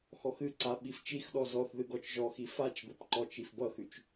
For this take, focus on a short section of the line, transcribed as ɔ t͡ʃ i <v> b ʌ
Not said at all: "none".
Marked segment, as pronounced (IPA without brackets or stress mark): f